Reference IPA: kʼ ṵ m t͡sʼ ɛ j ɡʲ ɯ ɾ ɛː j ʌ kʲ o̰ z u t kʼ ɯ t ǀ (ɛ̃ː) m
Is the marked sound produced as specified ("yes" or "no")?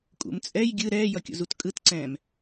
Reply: yes